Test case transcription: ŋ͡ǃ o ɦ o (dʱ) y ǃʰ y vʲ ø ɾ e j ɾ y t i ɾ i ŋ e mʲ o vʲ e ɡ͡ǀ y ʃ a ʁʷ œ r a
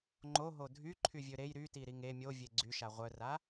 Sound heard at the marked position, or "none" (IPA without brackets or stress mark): dʱ